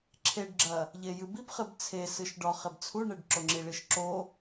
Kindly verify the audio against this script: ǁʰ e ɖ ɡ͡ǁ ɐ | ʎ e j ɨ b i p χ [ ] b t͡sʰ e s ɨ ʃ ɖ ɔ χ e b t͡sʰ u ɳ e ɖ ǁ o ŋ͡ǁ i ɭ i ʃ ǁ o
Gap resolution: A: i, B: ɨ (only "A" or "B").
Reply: B